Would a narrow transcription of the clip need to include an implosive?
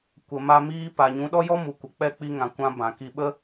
yes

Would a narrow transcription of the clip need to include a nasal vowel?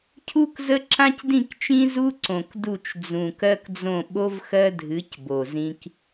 yes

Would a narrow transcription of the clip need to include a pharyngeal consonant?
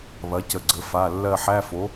yes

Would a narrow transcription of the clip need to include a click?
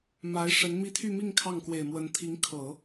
no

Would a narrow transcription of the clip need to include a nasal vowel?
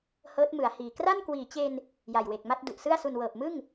no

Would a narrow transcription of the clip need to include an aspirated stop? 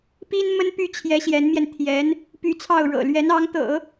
yes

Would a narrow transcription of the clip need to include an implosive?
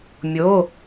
no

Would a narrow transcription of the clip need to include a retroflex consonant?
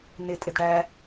yes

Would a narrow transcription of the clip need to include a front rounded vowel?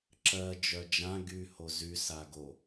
yes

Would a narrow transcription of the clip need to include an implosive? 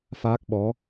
yes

